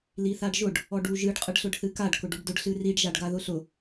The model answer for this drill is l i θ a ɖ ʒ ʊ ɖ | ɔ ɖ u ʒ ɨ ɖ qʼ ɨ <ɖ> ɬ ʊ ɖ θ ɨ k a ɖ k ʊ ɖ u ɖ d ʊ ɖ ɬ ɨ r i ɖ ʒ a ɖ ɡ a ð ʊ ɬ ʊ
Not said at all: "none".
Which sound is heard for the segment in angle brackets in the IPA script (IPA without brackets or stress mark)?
ɖ